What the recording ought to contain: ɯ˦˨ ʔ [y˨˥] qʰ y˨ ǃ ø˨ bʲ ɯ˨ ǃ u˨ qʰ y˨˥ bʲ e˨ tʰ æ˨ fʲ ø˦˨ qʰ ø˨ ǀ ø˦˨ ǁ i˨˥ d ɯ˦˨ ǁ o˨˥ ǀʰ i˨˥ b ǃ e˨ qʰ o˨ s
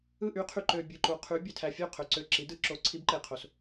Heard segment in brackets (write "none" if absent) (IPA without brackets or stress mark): y˨˥